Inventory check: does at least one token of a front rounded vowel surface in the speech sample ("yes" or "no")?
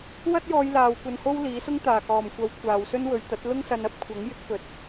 no